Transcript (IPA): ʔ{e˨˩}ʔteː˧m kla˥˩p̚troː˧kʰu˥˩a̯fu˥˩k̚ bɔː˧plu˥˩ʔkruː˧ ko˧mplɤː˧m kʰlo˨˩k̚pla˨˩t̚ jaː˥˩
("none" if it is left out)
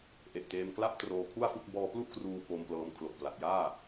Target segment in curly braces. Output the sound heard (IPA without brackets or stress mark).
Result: e˨˩